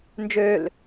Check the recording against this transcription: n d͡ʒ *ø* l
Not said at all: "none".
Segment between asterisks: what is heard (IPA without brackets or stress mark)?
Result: ø